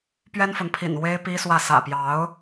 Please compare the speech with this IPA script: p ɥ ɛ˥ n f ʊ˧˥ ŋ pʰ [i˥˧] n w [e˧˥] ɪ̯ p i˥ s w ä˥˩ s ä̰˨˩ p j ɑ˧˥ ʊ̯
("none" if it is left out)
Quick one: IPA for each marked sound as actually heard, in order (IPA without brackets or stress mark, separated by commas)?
ḭ˨˩, e˥